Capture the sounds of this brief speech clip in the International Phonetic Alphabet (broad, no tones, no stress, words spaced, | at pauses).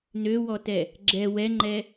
nøwɔtɛ | ɡ͡ǁɛ wɛŋ͡ǃɛ